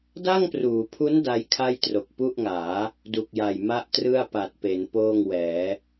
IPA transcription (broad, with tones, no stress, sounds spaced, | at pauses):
d a˥˩ ŋ p r uː˩˦ pʰ u˦˥ n d a˦˥ j kʰ a˥˩ j t r o˨˩ k̚ p u˥˩ ʔ ŋ aː˩˦ | d u˨˩ k̚ j a˨˩ j m a˥˩ ʔ t r ɯ˥˩ a̯ p a˨˩ t̚ p e˩˦ n p oː˥˩ ŋ w ɛː˩˦